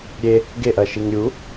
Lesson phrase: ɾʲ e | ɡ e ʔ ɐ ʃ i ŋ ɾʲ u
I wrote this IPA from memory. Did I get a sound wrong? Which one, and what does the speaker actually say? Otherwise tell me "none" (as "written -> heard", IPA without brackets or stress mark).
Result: none